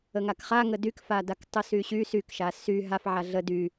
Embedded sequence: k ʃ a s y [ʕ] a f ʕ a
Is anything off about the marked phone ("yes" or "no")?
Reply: yes